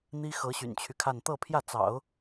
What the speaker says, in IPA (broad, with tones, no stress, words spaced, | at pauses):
n̪i˥ xɤ˧˥ɕy̰˨˩nt͡ɕʰy˦kʰa˥˧n t̪ɤ˥˧pʰjä˥˩t͡sɑ̰˨˩˦ʊ̯